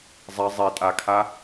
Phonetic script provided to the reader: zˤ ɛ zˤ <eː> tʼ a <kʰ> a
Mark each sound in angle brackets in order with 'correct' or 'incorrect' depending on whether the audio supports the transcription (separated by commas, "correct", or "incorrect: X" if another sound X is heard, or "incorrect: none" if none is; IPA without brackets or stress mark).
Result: incorrect: e, correct